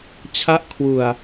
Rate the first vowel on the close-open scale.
open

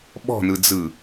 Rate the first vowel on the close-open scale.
mid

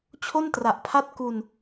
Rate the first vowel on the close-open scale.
mid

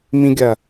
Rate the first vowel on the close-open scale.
close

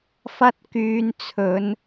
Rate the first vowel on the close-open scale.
open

